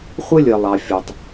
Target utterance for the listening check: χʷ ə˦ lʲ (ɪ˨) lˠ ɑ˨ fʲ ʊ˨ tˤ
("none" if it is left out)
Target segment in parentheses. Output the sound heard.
ə˨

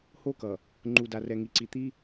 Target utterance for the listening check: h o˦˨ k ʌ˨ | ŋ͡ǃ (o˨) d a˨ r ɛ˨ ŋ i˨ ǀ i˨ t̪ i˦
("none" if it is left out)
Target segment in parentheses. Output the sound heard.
u˨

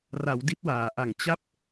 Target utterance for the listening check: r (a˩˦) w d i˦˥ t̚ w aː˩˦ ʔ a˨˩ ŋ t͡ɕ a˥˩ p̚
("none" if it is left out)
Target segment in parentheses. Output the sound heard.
a˩˦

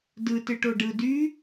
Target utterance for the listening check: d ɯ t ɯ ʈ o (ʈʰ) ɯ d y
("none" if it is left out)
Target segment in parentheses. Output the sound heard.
ɖ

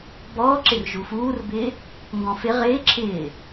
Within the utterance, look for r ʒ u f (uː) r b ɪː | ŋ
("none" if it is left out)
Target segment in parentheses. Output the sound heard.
uː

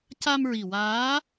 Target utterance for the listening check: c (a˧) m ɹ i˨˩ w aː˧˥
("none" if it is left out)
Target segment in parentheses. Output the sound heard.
a˧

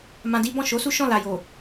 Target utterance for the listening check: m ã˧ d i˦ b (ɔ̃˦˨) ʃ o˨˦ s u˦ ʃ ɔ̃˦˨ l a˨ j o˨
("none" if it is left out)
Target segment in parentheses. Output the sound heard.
ɔ̃˦˨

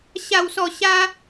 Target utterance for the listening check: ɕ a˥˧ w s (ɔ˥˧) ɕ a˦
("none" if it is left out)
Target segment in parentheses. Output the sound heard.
ɔ˥˧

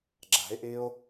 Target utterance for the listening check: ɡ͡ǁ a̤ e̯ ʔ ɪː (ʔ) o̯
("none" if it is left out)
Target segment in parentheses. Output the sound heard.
none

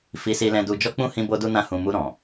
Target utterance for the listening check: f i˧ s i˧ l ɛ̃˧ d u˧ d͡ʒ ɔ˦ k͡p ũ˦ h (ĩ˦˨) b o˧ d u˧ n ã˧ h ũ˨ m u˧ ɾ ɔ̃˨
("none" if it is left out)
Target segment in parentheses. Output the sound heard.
ĩ˧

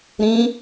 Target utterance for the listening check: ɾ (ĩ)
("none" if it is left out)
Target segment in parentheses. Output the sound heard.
ĩ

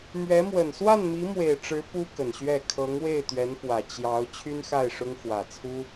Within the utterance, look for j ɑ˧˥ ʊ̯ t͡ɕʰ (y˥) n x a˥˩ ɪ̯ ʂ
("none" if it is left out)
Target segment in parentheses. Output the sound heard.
y˥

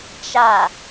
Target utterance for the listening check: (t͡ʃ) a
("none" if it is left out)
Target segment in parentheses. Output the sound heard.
t͡ʃ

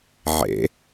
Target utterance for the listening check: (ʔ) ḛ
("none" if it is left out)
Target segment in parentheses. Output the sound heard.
ʕ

